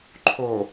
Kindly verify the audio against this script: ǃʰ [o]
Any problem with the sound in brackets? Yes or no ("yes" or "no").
no